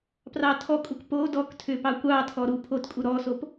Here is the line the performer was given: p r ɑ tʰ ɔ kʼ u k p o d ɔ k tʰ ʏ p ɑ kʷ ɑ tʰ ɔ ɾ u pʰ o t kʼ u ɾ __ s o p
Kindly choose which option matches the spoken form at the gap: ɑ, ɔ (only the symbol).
ɔ